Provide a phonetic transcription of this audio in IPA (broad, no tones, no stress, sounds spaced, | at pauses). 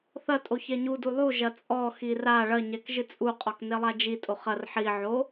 θ ɐ tʼ o ç ɛ ɲ u d u lˠ u ʒ ɐ t͡sʼ ɔ x i r a ɭ ɐ ɲ ɛ k ʒ ɨ t͡sʼ u qʼ ɔ k n e lˠ a d͡ʒ i tʼ o χ ɐ r ħ i ʕ o